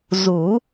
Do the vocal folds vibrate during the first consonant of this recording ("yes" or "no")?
yes